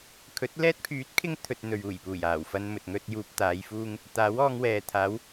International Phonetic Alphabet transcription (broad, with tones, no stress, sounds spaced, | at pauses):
kʰ ɵ˨˥ t̚ l ɛː˧ t̚ pʰ yː˨˥ t̚ kʰ ɪ˧ ŋ t̪ʰ ɵ˧ t̚ n̪ ɵ˨ ɥ uː˨˩ j p uː˨˩ j aː˨˩ w f ɐ˧ n m ɵ˨ t̚ ŋ ɵ˥ t̚ j uː˧ p̚ t̪ aː˨˧ j f uː˥ ŋ | t̪ aː˨˥ w ɔː˧ ŋ w ɛː˨ t̪ʰ aː˨˥ w